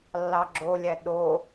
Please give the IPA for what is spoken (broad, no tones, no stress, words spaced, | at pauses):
lːɑɡ͡ǁolʲæ ɗo